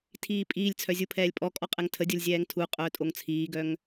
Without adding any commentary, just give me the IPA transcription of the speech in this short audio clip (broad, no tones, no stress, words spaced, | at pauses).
tʰiːpʼiːlʲt͡sʰœ zʲupʰɛːlʲpʼɔkʼɔ qʼɛŋtʰədʲolʲ zʲɛːŋtʰuqʼœː tʼoŋt͡sʰiːɡœŋ